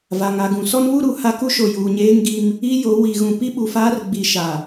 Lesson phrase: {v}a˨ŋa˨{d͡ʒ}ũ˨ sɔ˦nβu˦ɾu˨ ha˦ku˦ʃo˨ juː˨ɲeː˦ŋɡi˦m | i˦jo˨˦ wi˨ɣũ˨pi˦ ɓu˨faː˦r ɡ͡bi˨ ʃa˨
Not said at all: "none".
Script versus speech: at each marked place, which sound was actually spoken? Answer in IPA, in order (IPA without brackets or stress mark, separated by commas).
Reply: v, ɡ